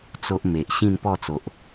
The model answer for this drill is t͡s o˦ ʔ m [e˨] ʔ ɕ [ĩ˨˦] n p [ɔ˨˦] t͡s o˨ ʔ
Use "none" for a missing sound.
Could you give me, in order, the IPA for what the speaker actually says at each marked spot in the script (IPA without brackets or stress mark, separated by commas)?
e˨, ĩ˥˧, ɔ˥˧